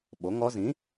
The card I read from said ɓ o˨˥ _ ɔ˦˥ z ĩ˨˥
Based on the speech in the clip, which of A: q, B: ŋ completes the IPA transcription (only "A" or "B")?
B